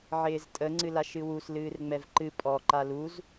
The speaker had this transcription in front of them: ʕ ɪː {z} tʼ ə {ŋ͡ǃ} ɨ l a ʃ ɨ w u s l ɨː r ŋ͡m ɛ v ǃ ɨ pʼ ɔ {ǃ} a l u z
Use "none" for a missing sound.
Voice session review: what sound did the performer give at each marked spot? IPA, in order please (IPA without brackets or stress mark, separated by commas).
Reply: z, ŋ͡ǀ, ǃ